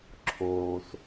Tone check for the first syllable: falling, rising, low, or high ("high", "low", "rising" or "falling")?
low